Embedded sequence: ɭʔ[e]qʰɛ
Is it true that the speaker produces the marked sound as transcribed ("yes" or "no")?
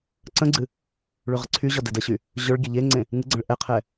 no